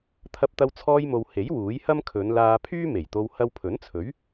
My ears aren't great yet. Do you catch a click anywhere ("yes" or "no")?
no